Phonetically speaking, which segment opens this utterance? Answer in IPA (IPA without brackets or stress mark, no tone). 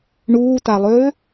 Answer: ɳ